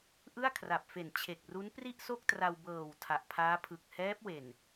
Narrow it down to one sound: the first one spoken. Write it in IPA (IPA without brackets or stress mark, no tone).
ʔ